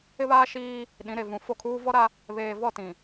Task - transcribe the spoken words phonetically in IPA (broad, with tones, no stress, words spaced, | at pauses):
ɪ˦βaː˦ʃiː˦ | ɗĩ˨˦ɾe˨ vũ˨ fo˦˨kʰuː˦ vɔ˦ɾa˦ | βeː˨vɔ˦˨tĩ˨